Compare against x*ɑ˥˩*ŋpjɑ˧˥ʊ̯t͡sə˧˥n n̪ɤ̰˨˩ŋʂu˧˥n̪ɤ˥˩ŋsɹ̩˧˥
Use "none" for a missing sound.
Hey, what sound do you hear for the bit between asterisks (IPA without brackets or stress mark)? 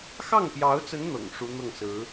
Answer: ɑ˥˩